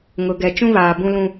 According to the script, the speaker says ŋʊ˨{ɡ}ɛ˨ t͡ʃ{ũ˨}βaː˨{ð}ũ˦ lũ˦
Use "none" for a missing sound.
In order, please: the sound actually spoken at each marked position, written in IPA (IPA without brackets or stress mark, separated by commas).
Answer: ɡ, ũ˦, b